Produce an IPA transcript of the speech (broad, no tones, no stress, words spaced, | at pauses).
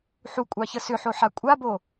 ħukʷʼɑçə sʏħoħa kʷʼabo